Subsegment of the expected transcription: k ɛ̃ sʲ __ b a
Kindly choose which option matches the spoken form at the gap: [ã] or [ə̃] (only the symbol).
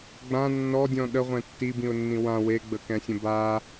ə̃